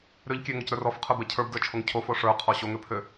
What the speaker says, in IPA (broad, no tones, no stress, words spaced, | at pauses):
ɾøʎ kʲøŋocɾə˞r ɔfqʰə˞bɛ cʰə˞bdə˞t͡ʃʰoŋ cʰofo ʂə˞qʰɔ ɕoŋø pʰø